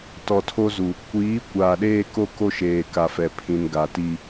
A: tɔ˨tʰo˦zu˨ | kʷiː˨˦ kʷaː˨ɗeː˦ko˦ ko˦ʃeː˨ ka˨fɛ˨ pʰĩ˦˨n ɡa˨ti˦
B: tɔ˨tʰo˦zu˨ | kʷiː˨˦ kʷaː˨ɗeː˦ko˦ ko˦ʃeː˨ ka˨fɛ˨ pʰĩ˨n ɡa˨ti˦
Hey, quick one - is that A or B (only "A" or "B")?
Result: B